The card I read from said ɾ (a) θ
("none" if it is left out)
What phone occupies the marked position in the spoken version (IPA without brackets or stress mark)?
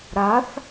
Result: a